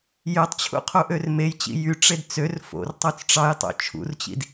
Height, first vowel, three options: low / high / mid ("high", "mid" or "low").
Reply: mid